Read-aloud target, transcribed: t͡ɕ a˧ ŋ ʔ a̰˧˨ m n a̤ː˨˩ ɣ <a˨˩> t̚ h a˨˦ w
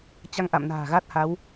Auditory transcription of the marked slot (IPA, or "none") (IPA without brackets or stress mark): a˦˥